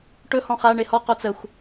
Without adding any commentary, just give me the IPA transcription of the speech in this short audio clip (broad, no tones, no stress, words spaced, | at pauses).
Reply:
ʈɵ hɔ̃χa ɳehɔ qot͡səxʷ